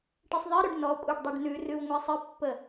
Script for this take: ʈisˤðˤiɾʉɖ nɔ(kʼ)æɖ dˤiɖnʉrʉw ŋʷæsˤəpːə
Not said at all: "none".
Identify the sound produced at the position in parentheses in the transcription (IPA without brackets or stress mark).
kʷʼ